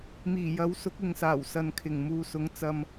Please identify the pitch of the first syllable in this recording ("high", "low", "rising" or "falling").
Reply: low